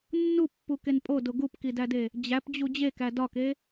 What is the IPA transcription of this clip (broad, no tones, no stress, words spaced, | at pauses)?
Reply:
nːupːuken pʼodo ɡupkidæde | d͡ʑæpd͡ʑu d͡ʑekæ dɒke